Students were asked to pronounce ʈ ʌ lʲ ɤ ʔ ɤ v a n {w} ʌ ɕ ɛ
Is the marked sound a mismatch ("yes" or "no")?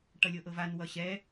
no